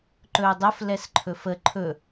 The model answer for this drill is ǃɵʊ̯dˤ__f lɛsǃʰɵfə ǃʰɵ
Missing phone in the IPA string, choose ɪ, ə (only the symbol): ə